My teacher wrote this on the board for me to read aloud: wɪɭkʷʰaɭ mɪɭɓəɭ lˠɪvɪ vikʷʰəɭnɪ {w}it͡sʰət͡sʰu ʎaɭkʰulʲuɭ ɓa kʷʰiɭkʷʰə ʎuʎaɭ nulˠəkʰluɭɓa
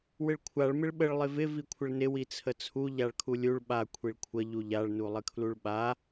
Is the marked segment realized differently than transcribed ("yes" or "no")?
no